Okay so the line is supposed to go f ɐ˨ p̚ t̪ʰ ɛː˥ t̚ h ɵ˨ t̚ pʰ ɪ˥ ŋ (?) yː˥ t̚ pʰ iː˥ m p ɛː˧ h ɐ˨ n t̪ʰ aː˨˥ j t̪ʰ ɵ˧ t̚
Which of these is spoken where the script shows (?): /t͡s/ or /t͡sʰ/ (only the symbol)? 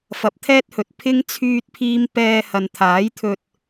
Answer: t͡sʰ